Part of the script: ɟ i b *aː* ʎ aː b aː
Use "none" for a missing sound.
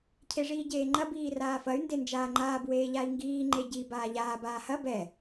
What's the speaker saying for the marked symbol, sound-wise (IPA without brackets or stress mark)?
aː